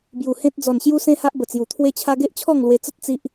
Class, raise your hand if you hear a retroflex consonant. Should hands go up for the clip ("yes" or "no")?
no